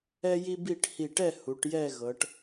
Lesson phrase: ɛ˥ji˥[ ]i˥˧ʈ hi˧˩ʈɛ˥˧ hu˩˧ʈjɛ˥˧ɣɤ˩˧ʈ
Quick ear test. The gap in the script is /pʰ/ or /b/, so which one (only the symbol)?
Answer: b